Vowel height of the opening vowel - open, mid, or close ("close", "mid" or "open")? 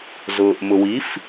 close